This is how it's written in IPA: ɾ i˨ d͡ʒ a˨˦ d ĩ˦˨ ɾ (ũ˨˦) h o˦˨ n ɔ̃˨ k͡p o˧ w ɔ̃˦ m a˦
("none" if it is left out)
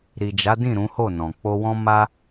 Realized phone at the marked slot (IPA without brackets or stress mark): ũ˨˦